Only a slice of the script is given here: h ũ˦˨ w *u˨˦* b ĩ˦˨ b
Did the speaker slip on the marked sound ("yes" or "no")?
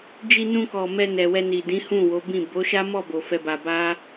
yes